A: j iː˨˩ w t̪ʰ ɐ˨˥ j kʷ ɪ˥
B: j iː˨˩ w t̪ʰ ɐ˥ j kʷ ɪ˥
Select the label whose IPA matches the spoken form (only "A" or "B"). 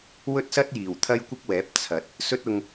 B